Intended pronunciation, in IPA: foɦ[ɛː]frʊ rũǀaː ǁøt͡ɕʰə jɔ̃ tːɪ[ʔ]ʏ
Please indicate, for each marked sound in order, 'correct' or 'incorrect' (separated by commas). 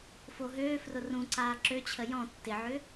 incorrect, incorrect